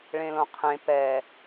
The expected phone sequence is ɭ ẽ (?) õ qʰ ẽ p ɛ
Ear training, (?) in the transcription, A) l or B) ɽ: A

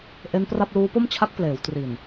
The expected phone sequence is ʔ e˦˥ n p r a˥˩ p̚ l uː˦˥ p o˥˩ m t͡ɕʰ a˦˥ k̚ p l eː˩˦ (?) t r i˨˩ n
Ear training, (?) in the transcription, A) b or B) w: B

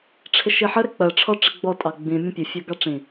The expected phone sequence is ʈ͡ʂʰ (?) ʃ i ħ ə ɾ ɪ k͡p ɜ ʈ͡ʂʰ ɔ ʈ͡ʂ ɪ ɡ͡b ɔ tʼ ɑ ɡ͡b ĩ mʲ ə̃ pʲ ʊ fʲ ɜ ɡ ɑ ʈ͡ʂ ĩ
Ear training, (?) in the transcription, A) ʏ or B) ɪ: B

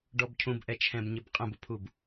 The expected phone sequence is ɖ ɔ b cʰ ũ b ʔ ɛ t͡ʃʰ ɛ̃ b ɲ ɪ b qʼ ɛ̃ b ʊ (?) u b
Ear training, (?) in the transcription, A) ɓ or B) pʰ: B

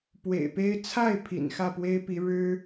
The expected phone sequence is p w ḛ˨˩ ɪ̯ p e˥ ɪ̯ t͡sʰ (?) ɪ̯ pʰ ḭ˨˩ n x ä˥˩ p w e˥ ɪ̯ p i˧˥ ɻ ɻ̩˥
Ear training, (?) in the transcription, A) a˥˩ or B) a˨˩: A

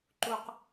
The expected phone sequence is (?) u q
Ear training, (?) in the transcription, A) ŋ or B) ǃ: B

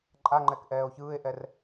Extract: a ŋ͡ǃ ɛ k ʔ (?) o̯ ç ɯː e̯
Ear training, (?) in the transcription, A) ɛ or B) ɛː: B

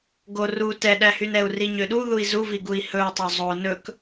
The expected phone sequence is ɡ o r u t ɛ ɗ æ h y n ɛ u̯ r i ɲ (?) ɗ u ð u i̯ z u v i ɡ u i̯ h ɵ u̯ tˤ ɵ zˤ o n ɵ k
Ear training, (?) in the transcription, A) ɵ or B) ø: B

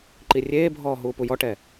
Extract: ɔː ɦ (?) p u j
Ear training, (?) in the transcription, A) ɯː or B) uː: B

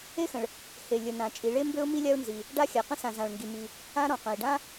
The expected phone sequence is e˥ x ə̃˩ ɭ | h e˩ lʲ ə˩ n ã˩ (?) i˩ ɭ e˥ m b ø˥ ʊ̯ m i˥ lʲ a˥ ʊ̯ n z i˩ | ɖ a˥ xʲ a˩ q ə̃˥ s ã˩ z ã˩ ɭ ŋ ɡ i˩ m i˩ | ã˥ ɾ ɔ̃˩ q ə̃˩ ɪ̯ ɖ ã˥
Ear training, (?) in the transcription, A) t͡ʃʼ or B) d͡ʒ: A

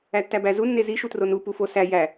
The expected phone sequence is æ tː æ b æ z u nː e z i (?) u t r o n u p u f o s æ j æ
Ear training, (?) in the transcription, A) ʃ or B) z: A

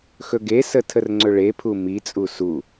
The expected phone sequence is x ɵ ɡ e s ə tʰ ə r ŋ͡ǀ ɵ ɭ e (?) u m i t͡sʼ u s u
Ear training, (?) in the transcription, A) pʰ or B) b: A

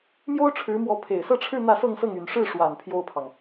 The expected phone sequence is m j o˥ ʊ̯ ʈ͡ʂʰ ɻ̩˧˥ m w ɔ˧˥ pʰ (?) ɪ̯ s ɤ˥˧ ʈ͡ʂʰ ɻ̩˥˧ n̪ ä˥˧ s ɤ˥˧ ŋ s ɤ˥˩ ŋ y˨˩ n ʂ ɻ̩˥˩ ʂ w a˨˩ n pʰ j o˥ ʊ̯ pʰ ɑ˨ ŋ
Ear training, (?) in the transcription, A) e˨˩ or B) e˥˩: A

